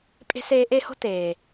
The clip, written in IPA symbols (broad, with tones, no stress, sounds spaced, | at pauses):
pʼ e̤˦ s eː˧ ʔ e˦˨ h o̤˦ t eː˨